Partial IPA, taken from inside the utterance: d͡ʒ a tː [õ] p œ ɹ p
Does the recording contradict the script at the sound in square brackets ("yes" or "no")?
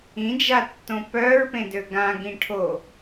no